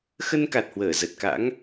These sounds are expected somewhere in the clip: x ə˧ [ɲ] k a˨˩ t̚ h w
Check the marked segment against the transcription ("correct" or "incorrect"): incorrect